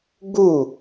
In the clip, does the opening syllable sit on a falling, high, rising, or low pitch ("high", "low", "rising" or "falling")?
falling